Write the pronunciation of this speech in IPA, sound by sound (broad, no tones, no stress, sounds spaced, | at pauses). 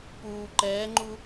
p uː ǃ ɛː ŋ͡ǃ u